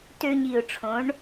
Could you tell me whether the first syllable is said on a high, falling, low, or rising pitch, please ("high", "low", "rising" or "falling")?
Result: high